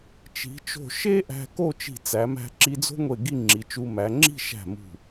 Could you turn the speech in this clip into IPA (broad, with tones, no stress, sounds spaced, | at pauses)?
t͡ʃ i̤˩˧ t͡ʃ o̤˧˩ ʃ e˥ ʔ æ̤˧ k o˥˧ t͡ʃ i̤˧˩ t͡s æ˩˧ m æ̤˧ ǁ i˧ d͡z o̤˥ ŋʷ e˧˩ ɡ i˥˧ ŋ͡ǁ i˩˧ t͡ʃ u˧ m æ˩˧ ŋ͡ǁ i̤˥˧ ʃ æ̤˧˩ m ṳ˧˩